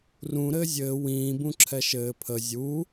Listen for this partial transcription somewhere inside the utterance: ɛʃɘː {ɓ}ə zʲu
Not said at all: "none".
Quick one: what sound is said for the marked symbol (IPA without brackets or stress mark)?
pʰ